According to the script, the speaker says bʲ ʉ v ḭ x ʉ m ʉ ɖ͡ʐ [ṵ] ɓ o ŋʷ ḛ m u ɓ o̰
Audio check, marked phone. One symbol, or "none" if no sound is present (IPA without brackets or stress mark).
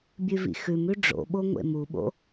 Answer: o̰